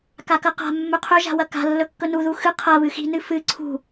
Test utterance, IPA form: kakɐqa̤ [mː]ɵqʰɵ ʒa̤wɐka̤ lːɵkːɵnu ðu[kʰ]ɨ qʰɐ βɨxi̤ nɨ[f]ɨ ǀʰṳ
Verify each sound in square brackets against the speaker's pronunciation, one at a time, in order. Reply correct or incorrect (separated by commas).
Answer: correct, incorrect, correct